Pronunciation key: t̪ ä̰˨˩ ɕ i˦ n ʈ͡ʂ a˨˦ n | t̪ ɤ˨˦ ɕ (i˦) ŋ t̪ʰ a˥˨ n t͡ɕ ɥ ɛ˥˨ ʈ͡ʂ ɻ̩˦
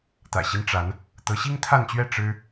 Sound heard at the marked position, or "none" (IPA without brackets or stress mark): i˦